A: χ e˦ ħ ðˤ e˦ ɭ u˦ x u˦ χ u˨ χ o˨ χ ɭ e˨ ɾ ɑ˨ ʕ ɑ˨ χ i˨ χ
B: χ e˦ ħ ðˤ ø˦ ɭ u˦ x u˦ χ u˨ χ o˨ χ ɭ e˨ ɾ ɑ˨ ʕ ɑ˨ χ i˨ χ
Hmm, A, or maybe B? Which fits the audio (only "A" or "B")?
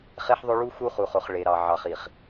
B